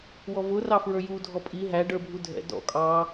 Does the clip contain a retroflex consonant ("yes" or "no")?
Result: yes